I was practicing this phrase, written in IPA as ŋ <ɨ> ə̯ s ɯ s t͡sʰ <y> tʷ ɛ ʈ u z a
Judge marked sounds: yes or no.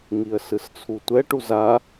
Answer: no, no

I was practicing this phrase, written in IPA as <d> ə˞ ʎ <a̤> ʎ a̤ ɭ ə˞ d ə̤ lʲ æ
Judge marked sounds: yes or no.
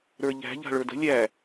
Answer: no, no

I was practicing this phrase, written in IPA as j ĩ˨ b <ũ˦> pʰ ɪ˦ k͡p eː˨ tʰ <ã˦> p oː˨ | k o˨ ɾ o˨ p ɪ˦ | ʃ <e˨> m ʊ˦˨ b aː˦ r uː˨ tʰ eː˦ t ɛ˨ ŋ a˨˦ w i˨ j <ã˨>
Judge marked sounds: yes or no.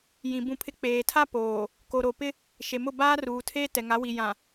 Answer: no, no, yes, yes

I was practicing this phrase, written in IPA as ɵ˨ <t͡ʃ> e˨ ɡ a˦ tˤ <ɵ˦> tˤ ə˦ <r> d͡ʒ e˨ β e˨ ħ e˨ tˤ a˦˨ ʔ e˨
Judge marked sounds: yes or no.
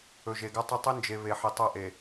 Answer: no, yes, no

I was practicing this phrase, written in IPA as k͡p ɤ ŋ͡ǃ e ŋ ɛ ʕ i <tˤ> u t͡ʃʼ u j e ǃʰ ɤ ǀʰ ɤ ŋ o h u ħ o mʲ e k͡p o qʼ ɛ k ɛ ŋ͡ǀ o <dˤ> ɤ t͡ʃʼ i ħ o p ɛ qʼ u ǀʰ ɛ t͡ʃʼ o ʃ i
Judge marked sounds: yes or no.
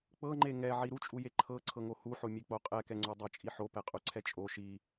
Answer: no, yes

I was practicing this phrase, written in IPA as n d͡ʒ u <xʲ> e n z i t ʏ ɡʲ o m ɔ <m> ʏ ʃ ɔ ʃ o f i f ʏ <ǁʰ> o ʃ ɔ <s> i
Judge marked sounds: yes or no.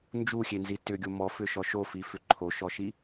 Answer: yes, no, no, no

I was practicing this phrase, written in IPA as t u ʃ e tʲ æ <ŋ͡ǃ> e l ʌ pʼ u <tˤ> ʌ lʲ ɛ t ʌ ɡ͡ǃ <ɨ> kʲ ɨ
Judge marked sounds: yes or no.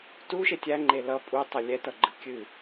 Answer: yes, yes, yes

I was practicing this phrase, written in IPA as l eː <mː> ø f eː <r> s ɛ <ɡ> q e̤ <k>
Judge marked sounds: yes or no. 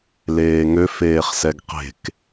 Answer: no, no, yes, yes

